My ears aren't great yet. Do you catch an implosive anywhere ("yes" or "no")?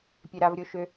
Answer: no